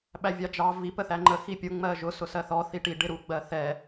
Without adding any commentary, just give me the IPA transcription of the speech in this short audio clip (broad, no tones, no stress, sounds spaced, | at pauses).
ɓ æ vʲ ɑ d͡ʒ ɑ v i p ə θ æ ŋ͡ǃ ə x i pʲ ʊ ŋ͡m ɜ ʒ ʊ s ʊ s ɜ θ ɔ θ i ʈ i ɖ ɪ ɾ u ɡ͡b ɜ θ ɛ